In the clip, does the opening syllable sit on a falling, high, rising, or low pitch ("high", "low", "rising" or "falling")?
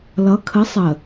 rising